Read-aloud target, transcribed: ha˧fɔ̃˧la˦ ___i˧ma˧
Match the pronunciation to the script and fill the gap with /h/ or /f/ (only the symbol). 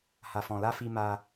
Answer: f